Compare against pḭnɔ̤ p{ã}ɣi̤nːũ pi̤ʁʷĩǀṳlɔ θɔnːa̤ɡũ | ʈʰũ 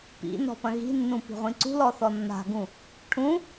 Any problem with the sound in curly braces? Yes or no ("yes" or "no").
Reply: yes